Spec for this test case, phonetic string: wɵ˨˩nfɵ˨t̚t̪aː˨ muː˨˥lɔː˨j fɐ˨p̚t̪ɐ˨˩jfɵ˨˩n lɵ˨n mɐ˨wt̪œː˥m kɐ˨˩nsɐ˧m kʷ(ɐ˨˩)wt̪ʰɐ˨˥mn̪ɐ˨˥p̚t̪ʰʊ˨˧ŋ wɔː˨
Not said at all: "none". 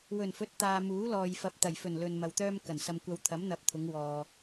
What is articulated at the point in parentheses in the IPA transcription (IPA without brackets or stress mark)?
ɐ˧